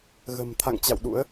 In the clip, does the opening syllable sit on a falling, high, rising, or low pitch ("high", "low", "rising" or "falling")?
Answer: low